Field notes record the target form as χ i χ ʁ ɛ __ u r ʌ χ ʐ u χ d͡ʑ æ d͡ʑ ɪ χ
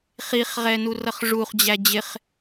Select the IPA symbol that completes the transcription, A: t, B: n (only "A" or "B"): B